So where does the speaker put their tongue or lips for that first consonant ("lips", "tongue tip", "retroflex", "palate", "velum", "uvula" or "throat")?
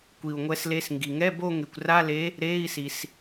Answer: velum